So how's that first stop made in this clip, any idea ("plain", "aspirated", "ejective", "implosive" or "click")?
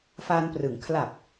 plain